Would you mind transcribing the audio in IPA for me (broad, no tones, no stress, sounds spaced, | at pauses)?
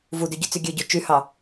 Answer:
v u d y ɟ y t͡s y ɡʲ ø ɟ o t͡ʃ y h ɑ